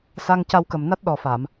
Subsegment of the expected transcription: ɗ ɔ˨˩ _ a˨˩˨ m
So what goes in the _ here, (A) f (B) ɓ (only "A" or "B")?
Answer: A